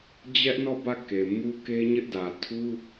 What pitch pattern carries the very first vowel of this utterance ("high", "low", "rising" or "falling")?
high